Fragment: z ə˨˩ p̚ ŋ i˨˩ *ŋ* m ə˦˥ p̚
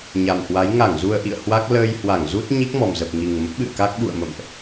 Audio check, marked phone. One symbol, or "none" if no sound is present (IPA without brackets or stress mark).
ŋ